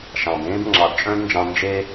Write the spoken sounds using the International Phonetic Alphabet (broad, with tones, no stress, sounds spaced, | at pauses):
ʃ ɑ̃˨ b ẽː˦ b ŋ͡ǁ ɑ˨ d t͡ʃʼ œ̃˦ d n d͡ʒ ɑ̃˧ n d͡ʒ e˧